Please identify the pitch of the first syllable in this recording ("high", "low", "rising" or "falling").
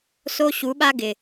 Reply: high